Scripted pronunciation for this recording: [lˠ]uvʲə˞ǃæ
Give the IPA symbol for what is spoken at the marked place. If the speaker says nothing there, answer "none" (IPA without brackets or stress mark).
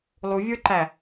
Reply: lˠ